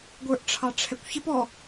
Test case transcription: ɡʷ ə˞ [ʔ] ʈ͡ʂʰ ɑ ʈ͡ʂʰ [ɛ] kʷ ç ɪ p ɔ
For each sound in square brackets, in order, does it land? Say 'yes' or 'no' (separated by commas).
yes, yes